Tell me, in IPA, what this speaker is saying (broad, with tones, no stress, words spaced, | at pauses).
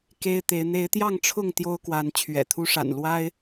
ke˦ɪ̯t̪e˨˦ɪ̯ n̪e˨˦ɪ̯t̪jɑ˥˨ŋʈ͡ʂʰʊ˥˨ŋ t̪jo˦ʊ̯kwa˨˦n t͡ɕʰɥɛ̰˨˩t̪ʰu˦ ʂa̰˨˩nlwa˦ɪ̯